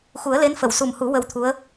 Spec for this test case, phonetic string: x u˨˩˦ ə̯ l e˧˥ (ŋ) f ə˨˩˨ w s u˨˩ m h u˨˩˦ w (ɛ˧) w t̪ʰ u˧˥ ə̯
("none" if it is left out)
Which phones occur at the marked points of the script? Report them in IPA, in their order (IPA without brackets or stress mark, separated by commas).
n, ə˧